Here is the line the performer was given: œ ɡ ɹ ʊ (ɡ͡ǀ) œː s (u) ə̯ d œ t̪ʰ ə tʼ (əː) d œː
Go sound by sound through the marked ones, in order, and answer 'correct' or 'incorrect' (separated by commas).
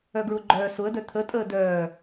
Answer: incorrect, incorrect, correct